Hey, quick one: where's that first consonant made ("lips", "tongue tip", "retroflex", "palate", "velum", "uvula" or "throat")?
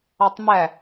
tongue tip